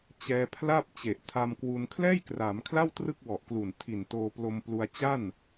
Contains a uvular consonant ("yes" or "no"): no